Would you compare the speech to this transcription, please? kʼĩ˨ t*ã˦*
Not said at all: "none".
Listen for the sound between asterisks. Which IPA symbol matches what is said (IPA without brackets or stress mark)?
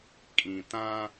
ã˦